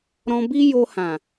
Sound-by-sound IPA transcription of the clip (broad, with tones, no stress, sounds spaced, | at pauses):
ɾ ɔ̃˧ b i˦ j o˧ h ã˨